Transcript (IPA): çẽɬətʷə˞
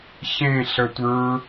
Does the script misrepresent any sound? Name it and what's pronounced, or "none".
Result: none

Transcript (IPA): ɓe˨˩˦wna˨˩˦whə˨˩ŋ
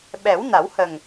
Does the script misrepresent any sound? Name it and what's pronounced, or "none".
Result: e˨˩˦ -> ɛ˨˩˦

